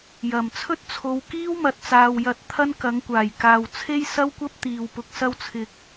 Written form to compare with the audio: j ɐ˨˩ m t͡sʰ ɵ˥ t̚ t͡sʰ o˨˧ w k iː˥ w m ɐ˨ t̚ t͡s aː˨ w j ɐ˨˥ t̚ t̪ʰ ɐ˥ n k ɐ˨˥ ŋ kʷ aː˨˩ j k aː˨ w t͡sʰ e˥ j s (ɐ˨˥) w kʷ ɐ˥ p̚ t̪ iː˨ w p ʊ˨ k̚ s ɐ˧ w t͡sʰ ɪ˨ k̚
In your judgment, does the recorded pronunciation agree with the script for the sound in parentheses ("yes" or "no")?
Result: no